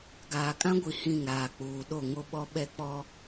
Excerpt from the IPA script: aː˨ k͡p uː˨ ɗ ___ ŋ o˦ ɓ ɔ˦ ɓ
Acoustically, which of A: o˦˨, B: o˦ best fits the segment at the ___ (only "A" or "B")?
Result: A